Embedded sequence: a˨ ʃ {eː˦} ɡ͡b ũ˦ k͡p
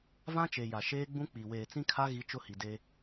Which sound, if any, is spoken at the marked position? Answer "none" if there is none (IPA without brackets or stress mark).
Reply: eː˦